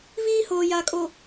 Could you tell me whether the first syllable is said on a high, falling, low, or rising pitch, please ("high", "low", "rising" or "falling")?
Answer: high